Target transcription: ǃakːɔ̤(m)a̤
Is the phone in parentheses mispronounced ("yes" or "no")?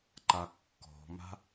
no